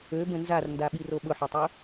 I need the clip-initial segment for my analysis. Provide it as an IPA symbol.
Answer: ø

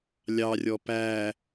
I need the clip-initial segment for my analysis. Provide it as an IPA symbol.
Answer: lʲ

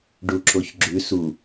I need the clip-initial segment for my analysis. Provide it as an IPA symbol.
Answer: ɖ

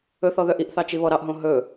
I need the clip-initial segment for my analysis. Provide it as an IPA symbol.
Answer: ɵ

